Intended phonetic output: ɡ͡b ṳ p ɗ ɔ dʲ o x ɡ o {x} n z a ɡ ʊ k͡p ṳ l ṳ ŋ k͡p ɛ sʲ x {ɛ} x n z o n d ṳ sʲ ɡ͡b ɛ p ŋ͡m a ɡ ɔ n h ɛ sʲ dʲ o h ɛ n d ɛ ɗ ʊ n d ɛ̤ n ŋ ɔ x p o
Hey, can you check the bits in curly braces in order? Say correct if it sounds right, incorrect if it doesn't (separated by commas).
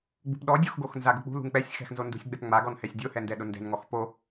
correct, incorrect